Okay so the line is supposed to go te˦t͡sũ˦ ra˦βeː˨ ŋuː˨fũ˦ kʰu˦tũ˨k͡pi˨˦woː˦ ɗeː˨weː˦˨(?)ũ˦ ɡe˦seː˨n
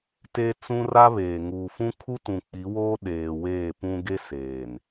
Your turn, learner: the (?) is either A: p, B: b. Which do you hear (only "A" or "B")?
A